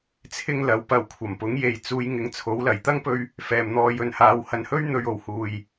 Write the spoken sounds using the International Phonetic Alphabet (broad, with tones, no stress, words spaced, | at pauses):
t͡sʰɪ˥ŋlɐ˨˧w pɐ˨wkʷʰɐ˨˩mpʊ˨˥ŋje˨j t͡suː˧j ŋɪ˨˧ŋt͡sʰo˨˥w lɐ˨˩jt̪ɐ˥ŋpɵ˧ɥ | fɛː˨mn̪ɔː˨˧jɵ˨nhaː˨˧w hɐ˨˧nhɵ˥ɥ n̪ɵ˧ɥo˨˩w huː˨j